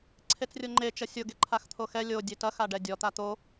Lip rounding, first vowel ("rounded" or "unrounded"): unrounded